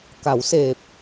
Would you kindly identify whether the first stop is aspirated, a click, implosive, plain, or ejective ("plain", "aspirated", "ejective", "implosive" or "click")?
plain